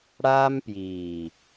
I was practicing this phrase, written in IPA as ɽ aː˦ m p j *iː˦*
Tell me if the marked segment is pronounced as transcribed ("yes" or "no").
no